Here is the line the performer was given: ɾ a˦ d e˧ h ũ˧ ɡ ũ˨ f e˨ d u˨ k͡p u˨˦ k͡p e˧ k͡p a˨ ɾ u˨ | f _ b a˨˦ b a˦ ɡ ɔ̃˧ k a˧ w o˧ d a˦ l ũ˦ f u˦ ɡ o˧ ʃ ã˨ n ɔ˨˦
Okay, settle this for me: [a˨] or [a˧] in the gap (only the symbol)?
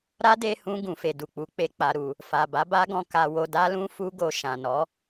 a˨